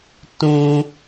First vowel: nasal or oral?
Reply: nasal